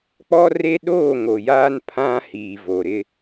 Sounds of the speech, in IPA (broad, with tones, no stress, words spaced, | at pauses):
k͡pɔ˦re˦ ɗoː˦˨ŋo˨jaː˦n pʰã˦hiː˨ vo˨ɾɪ˦